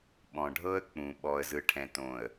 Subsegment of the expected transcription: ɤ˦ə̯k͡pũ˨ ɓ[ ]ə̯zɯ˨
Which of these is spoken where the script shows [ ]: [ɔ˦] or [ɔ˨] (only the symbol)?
ɔ˨